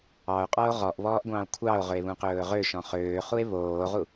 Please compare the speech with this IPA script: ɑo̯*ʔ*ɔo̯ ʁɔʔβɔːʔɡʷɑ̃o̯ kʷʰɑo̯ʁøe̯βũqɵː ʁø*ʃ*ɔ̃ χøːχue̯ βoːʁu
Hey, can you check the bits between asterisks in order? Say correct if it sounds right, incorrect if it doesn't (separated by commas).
incorrect, correct